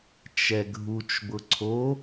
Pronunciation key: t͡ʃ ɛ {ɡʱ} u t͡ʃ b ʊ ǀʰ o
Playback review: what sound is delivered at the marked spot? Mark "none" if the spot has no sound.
ɡʱ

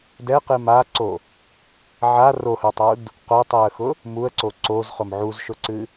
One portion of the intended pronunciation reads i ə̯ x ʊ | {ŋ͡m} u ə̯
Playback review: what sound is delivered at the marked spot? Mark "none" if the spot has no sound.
m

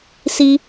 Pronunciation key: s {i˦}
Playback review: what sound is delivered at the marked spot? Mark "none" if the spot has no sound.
i˦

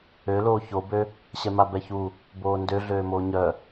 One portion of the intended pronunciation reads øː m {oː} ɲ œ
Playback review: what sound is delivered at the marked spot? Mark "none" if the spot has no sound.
oː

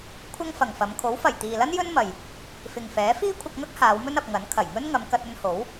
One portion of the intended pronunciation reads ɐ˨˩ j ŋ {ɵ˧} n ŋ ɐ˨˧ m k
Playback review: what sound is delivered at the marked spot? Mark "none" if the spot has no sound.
ɵ˥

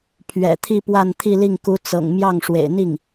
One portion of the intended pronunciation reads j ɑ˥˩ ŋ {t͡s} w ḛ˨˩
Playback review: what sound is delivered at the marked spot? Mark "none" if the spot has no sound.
ʂ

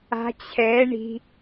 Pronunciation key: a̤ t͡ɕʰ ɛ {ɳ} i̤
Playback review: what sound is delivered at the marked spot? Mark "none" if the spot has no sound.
ɳ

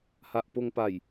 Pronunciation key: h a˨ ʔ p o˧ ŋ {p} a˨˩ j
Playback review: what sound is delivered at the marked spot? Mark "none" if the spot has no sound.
p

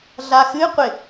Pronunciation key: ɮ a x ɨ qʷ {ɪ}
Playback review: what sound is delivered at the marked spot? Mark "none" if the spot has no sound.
ɪ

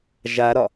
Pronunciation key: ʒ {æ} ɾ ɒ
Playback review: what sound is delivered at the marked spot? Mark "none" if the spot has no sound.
a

